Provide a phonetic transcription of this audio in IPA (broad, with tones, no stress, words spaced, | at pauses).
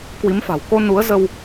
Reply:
kwi˨˦mfa̤˨˩w ko˧nu˨˦ə̯ zə˧w